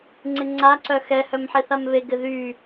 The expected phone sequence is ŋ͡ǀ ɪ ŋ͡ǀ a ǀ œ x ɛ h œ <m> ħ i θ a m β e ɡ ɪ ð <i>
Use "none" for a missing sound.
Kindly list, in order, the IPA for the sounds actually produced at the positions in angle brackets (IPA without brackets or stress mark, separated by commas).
m, y